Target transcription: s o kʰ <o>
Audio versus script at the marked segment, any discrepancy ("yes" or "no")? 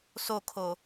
no